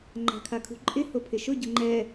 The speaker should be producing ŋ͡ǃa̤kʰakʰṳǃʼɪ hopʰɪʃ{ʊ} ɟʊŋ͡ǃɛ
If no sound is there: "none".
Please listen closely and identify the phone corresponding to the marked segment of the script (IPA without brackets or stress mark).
ʊ